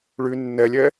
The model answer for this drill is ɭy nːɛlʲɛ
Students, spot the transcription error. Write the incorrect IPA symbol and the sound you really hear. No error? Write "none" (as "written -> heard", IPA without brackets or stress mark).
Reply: none